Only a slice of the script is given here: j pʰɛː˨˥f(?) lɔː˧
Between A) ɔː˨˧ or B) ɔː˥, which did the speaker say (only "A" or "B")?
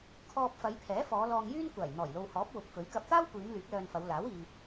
A